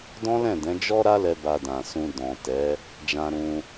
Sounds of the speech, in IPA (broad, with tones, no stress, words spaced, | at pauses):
dɔ̃˦lɛ̃˦˨dɛ̃˨˦d͡ʒɔ˦ ɾa˦lɛ˧ ba˧dã˨sũ˧ dɔ̃˨ tɛ˨˦ | d͡ʒã˧ɾũ˧